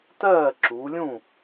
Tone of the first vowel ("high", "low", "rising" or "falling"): falling